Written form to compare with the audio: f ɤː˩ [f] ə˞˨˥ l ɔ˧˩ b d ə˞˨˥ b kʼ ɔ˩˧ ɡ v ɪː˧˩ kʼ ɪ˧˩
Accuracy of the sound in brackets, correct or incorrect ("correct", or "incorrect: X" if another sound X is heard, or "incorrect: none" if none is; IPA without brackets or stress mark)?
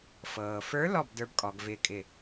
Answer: correct